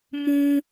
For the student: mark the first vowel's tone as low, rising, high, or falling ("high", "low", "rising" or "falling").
high